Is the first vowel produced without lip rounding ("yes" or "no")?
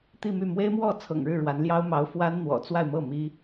yes